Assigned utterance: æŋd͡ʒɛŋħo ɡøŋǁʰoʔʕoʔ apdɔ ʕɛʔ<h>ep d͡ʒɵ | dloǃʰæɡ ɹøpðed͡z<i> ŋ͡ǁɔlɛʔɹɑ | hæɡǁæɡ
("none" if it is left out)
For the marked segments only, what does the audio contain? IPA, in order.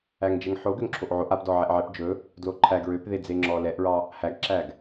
ʕ, e

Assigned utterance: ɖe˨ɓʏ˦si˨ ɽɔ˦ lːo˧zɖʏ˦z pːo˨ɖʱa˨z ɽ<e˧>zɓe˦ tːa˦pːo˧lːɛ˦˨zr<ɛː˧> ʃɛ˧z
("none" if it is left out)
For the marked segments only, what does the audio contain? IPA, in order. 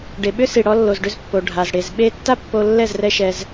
e˨, ɛ˧

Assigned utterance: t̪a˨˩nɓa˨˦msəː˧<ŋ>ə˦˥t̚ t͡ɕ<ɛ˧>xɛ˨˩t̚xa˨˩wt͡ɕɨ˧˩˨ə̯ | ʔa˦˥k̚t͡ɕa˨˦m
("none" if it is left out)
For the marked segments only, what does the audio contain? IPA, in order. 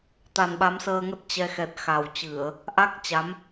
ŋ, ɛ˧

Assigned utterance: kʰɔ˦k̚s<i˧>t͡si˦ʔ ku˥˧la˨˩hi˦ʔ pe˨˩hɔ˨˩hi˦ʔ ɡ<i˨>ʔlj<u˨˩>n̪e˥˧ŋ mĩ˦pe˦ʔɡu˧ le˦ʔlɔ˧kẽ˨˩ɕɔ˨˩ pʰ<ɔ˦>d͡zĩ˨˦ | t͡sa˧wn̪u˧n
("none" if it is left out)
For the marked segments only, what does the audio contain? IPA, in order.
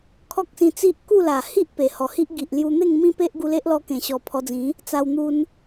ĩ˧, i˨, u˧, ɔ˧

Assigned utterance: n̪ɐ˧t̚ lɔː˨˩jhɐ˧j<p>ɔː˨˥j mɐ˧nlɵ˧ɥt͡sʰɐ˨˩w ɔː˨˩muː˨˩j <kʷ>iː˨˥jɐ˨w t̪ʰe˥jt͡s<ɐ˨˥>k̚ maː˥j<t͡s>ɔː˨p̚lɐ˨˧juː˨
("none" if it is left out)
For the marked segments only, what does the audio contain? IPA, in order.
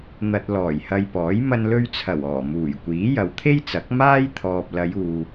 p, kʷ, ɐ˨˥, t̪ʰ

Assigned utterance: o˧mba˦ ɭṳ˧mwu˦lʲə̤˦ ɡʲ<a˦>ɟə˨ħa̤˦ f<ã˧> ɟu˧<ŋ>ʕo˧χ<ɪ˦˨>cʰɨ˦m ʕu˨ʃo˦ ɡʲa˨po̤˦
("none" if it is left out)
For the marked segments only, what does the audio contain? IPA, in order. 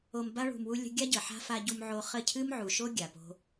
a˦, a˧, m, ə˦˨

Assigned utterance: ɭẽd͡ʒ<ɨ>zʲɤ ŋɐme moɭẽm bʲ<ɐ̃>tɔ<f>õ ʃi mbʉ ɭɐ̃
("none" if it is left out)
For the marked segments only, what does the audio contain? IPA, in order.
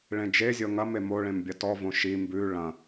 e, ɐ, v

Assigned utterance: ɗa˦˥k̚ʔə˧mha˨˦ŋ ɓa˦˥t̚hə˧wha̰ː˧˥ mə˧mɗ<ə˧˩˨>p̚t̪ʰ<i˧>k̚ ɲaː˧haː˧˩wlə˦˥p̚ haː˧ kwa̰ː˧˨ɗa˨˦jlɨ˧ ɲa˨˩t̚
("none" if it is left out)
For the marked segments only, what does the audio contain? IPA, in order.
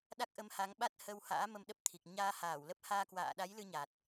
ə˦˥, i˨˩

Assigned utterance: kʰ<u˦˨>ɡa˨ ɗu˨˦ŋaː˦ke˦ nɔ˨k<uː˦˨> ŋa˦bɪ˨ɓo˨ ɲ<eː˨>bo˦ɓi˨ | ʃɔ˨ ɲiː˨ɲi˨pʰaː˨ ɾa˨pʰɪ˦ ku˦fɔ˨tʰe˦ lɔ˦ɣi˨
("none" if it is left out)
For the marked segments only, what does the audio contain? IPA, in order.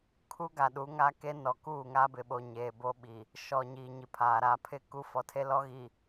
u˦, uː˦˨, eː˨

